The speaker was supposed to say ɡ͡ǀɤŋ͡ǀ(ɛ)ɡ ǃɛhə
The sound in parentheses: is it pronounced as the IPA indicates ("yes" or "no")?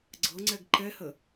yes